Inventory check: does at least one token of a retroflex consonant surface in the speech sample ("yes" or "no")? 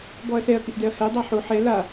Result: no